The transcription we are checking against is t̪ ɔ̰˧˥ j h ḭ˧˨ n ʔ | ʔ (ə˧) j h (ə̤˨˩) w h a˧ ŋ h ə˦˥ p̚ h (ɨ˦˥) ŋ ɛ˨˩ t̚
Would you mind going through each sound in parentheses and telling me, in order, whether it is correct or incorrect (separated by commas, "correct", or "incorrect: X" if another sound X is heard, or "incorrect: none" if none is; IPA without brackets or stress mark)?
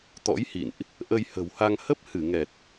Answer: correct, correct, incorrect: ɨ˧˩